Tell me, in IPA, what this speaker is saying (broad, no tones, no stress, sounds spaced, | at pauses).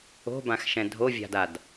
o̤ b ã x ʃ ɛ̃ dʱ o vʲ a̤ d a d